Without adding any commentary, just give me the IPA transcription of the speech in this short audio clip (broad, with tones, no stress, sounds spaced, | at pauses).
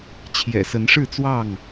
t͡ɕʰ j ɛ̰˨˩ s ə˨˦ n ʂ ɻ̩˥˨ t͡s w ɑ˥˨ ŋ